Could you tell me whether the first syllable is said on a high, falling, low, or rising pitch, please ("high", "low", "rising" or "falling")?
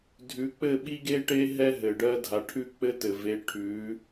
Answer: rising